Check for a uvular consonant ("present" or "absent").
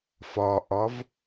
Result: absent